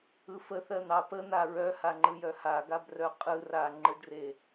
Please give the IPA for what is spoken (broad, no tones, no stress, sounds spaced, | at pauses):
ɯ f ə θ ɜ n̪ ɑ p ə n̪ a ɹ œ h a ŋ͡ǃ ɯ j œ h a ɡ a b r œ qʼ ɯ r a ŋ͡ǃ ɯ ɖ r e